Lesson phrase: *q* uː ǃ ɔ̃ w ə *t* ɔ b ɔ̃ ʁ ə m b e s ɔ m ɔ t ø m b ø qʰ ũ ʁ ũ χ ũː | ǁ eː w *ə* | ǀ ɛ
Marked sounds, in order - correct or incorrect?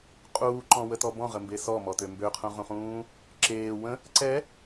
incorrect: qʼ, correct, incorrect: ə̃

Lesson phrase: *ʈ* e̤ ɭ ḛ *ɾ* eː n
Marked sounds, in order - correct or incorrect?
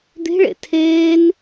incorrect: d̪, incorrect: tʰ

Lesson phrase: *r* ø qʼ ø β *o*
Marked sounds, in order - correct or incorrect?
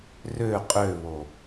correct, correct

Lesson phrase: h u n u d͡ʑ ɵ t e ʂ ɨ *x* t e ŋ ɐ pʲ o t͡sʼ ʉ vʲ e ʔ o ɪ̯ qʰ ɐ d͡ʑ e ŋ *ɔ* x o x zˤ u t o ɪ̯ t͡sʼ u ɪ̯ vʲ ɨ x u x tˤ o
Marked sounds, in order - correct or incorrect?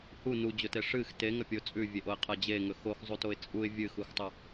correct, incorrect: ɵ

